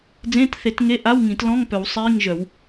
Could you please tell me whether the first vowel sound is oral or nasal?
nasal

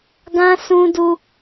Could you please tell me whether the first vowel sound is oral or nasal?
nasal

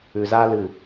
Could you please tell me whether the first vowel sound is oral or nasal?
oral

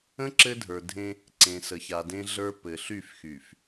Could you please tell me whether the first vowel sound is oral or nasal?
nasal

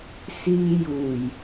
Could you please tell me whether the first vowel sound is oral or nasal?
oral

